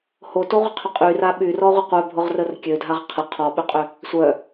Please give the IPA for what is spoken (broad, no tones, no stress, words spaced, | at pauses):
hotoʁʷəqʰʏ qʼyra ɓyrɔʁʷɪ qʷœbʱʊʁrər kʲødʱaʁ qʰə qʰɔɓʏqʼʏ | sʷœ